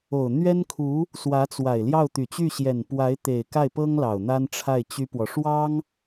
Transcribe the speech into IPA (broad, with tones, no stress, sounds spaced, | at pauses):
o˨˩ ʊ̯ n̪ ɥ ɛ˥ n kʰ u˧˥ | s w ä˧˥ t͡s w a˨˩ ɪ̯ l j ɑ˥˩ ʊ̯ t̪ y˨˩ t͡ɕ y˥˩ ɕ j ɛ˨˩ n p w a˧˥ ɪ̯ t̪ e˨˩ ɪ̯ k a˥˩ ɪ̯ p ɤ˥ ŋ l ɑ˨˩ ʊ̯ n̪ a˥ n ʈ͡ʂʰ a˥˩ ɪ̯ t͡ɕ y˥ p w ɔ˨ ʂ w ɑ˥ ŋ